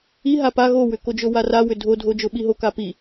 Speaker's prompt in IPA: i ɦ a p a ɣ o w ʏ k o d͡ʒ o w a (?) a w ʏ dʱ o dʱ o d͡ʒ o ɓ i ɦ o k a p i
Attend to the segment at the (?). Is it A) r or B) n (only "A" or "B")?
A